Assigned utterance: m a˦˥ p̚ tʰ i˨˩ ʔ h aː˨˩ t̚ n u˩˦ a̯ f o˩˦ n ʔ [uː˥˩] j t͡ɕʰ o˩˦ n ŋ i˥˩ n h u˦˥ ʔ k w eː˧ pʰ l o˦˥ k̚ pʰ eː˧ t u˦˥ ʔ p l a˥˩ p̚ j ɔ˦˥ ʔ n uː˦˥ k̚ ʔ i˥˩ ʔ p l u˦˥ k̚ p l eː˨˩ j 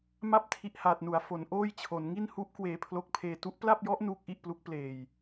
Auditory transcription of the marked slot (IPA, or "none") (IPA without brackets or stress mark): oː˥˩